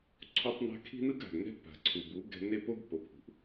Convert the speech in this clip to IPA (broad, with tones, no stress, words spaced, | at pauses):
ǀʰo˦tˤna̤˦ kʰi̤˦nɯ˦ɡa̤˨ɡnɛ̤˦ pa̤˨ǀʰu˨bu˨˦ ɡɛ̤˦ ne˦po˦ɡ po˨pʰṳ˨ʔ